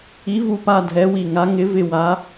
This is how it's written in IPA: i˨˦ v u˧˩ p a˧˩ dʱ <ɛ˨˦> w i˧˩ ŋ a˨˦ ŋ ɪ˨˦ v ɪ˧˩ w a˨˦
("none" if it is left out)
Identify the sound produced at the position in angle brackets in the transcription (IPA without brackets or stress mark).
ɛ˨˦